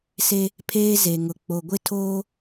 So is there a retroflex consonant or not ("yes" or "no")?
no